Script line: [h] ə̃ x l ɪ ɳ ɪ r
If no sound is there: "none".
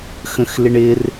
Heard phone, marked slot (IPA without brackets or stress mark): x